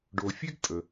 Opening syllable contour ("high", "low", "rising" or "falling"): low